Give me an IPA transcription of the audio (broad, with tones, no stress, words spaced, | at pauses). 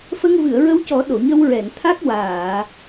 fə˧ŋvɨ˨˩˨ə̯ɹə˧wcɔ˨˩˦ ɗo˨˩˨ɲə˧wɹɛ˨˩˨nt̪ʰa˦˥k̚ waː˨˩˨